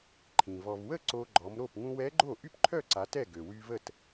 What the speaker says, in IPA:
ǃʰ ĩ˩ v ɔ˩ v w ə˥˩ ǀ o˧ ɡ͡ǃ ɔ˩˧ m ɾ o˥˩ p ŋ ũ˧ w ɛ˧˥ ɡ͡ǃ o˥˩ ʔ y˥˩ p ǃʰ œ˥˩ ǀ a˩˧ t ɛ˥˩ ɡ ø˩ w y˧ v ə˥˩ t

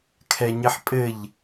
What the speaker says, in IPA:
kʰ ɛ ɲ ɘ ħ pʼ ɘ ʎ

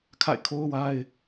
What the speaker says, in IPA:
kʰ a̰˦˨ ɪ̯ kʰ o˦ ʊ̯ w a˦ ɪ̯

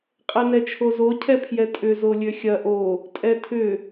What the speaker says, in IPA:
qʼ ɛ n ɛ t͡ʃʰ o z o cʰ ɛ pʰ j ɛ tʼ ʏ z o lʲ ø xʲ ɐ ʔ o | tʼ ɛ tʰ ʏ

